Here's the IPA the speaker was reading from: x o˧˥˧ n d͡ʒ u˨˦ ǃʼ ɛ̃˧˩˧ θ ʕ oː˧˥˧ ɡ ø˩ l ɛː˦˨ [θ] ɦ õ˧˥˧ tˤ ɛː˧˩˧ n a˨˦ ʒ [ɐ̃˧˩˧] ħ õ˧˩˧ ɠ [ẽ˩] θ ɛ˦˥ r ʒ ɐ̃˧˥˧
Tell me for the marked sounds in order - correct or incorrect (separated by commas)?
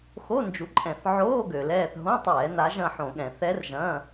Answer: correct, incorrect, incorrect